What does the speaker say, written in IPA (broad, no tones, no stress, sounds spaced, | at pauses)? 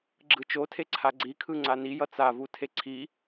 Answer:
ɡ͡ǁ ɯ t͡ʃ o tʰ e ǀʰ a ɡ͡ǀ i kʰ ɯ ŋ͡ǀ a n i j ʌ t͡s a v u tʰ e ǀʰ i